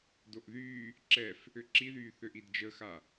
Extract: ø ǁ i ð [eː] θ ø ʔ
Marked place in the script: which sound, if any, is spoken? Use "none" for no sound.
yː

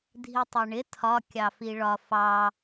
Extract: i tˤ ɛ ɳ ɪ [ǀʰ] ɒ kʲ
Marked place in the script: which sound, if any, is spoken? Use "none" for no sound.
tʰ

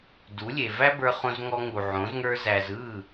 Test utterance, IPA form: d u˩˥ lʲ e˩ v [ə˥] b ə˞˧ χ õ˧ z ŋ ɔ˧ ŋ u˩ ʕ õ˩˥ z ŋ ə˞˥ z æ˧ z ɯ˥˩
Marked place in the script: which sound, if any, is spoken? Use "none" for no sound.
æ˥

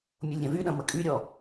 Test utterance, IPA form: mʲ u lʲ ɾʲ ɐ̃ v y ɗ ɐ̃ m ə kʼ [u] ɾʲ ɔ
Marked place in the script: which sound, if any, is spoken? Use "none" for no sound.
y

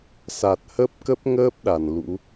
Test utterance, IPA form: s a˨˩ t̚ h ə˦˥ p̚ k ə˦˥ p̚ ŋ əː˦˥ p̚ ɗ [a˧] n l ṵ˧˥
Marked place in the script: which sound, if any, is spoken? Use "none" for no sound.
a˧˩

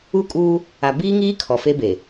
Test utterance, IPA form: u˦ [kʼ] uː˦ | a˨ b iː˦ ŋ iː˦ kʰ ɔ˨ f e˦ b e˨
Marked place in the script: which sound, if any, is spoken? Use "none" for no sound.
kʼ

